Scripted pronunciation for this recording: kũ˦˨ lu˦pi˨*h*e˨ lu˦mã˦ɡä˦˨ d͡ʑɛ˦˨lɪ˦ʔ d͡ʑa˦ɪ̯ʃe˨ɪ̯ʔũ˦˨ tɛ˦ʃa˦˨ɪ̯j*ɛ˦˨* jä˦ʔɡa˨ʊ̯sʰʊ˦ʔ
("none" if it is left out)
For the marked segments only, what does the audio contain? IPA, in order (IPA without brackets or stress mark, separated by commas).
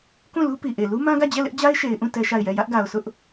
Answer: ʔ, ɛ˦˨